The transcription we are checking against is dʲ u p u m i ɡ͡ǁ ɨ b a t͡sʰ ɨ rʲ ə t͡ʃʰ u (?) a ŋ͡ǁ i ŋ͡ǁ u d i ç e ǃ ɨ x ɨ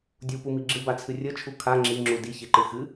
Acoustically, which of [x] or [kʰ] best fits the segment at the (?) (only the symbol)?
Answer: kʰ